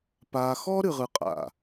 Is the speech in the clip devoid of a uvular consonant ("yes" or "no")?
no